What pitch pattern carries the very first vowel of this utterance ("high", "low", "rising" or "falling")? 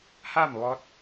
falling